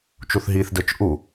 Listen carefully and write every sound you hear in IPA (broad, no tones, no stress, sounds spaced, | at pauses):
t͡ʃ u θ ɦ i θ d ə˞ t͡ʃ ʔ u